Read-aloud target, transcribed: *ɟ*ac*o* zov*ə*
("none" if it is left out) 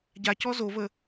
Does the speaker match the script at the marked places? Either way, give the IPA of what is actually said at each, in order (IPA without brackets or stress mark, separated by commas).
ɟ, ɔ, ə